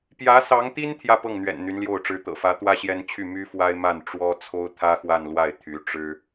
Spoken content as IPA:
p j ä˧˥ s ɑ˧˥ ŋ t̪ i˥ n t̪ʰ j ä˥˧ p ɤ˥˩ ŋ n̪ ɥ ɛ̰˨˩ n n̪ y˧˥ n l j o˥˩ ʊ̯ ʈ͡ʂ ɻ̩˧˥ t̪ ɤ̰˨˩ f ä˧˥ t̪ w ä˥ ɕ j ɛ˥ n t͡ɕʰ y˥˩ m y˥ f w a˥ ɪ̯ m a˥˩ n ʈ͡ʂ w ɔ˥ t͡sʰ o˥ ʊ̯ t̪ʰ ä˥ x w a˥˧ n l w a˥˩ ɪ̯ t̪ʰ y˧˥ ʈ͡ʂ ɻ̩˥

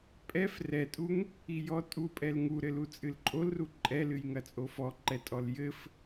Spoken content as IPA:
pʼ ɛ f r ɛ tʼ u ŋ | i j ɔ tʼ u pʼ ɛ l ŋ u ɾ ɘ l u t͡sʼ ɨ l ǃʼ o l r u ǃʼ ɛ l ɨ j ŋ ɐ t͡sʼ o f ɔ ǃ ɛ tʼ ɔ l j ɘ f

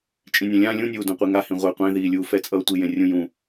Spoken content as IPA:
t͡ʃʼ ĩ nʲ ã lʲ ã lʲ ũ nʲ uː d ũ qʷ i ŋ a h ĩ ʁʷ e qʷ ẽ ð iː lʲ uː f ɛ t͡sʼ ʌː tʷ i j ẽ rʲ ũ j ũ

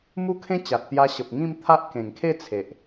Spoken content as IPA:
m u˦ kʰ ẽ˦ t͡ɕ a˨ t̚ t̪ j a˧ ɕ ə˨ p̚ ŋ ĩ˥˧ m t̪ʰ a˦ ʔ k ẽ˨˩ ŋ kʰ e˥˧ t͡sʰ e˨ ʔ

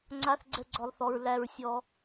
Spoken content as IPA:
ŋ͡ǀ a˧ θ ɡ͡ǀ ɛ˧ ɡ͡ǀ ɔ˨ lˠ θ ɔ˨ ɹ l æ˨ ɹ sʲ ɔ˧

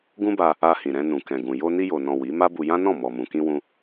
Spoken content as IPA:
ɡ ũ˦ b a˧ | a˧ h ĩ˨ ɾ ɛ̃˧ n ũ˨ k ɛ̃˨ ɡ ũ˨ j o˧ n i˧ j o˨ n ɔ̃˨ w i˨˦ m a˦ b u˧ j ã˦ n ɔ̃˦˨ m ɔ˨ m ũ˨ k ĩ˧ w ũ˧

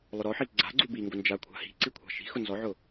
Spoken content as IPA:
lˠ ʊ ɾ ɔ ħ i ɡ͡ǀ a̤ ɡ͡ǀ u b i ŋ ɡ ʊ n d͡ʒ a kʷʰ a̤ h i̤ ǀ i kʷʰ a̤ ʃ i̤ x ʊ n z ɔ ʕ ʊ

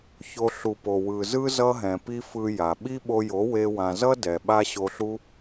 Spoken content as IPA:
ç o˧ ɬ u˨ p o˨ w ɯ˨ z ɯ˦ z ʌ˧ ɦ ɛ̃˨ p i˦ f ɯ˧ j a˨ ɓ i˦ ɓ o˧ j o˨˦ w e˧ w ã˨ z ʌ˦ d ɛ˨ ɓ a˦ ɕ o˧ ɬ u˦

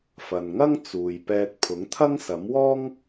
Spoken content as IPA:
f ɐ˨ n ŋ ɐ˥ ŋ t͡s uː˨ j p ɛː˧ t̚ pʰ ʊ˨˥ ŋ t̪ʰ ɐ˥ ŋ s ɐ˨˥ m w ɔː˥ ŋ

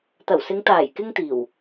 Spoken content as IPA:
t̪ ɐ˨˩ w s ɪ˨˧ ŋ t̪ aː˨˩ j k ɪ˥ ŋ t̪ iː˨˩ w

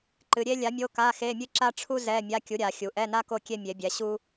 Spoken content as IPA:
ǃ ɨ˩˧ ɾʲ e˥ lʲ a˨˥ mʲ o˧˥˧ k a˧˥˧ x e˧˥˧ mʲ ɨ˥ ǁ a˥ ʈ͡ʂʰ u˥ z ɛ˧˥˧ mʲ a˧˥˧ kʲ u˨˥ ɾʲ a˩˧ xʲ u˩˧ ʔ ɛ˧˥˧ n a˥ k o˥ kʲ e˥ mʲ e˨˥ bʲ ɛ˨˥ ɕ u˥

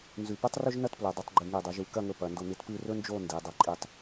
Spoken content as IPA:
n z ʉ˧˩ p ʉ˥ tˤ r ɵ˥ ʒ n ɐ˥ t p l ɵ˩˧ dˤ ɨ˩˧ tˤ ɡ͡ǃ ɨ˧˩ ŋ i˧˩ dˤ ʉ˩˧ ʒ ʉ˧ k ɐ˥˧ ŋ ɵ˧ p ɐ˩˧ n d o˧ n ɨ˧ t p ɨ˥˧ r ɵ˥ n d͡ʒ o˥˧ n d i˩˧ dˤ ɐ˧ ǃʼ i˧ tˤ

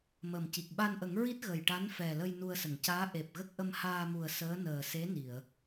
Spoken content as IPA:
m əː˨˩ m c i˨˩ k̚ ɓ a˧ n ʔ ə˨˩˦ ŋ ɹ i˦˥ t̚ ɣ ə˨˩ j ʈ a˧˥ n f ɛ˨˩ l ə˧ j n u˧ ə̯ s ə˨˩˨ ŋ c aː˧˥ ʔ e˨˩ p̚ ɣ ə˦˥ k̚ ʔ ə˧ m h aː˧ m u˨˩ ə̯ s əː˧˥ n əː˨˩ s e˧˥ n i˨˩˨ ə̯

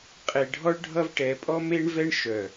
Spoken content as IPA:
qʼ e˨ ɖʱ ɔ˦ ɭ ɖʱ ʌ˦ v ʈ ɛ˨˦ pʼ ɔ˦ m e˦ ɳ v ɛ˦ ɳ ʃ œ˨

